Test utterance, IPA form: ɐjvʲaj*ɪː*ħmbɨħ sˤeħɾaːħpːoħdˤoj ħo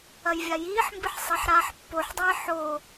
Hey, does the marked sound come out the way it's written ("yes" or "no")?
no